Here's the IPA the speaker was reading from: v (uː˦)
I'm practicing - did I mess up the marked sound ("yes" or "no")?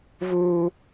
no